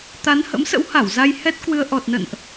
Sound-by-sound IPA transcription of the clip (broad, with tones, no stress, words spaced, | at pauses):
t̪a˨˦nhə̰˧˥msə̰˧˥wha˧˩w za˧jhɛ˦˥t̚kwɨ˧ə̯ ʔɔ˨˩t̚nə̰˧˨nʔ